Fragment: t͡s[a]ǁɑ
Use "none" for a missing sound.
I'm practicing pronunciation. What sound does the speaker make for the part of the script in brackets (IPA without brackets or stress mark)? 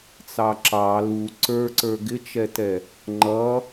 ɑ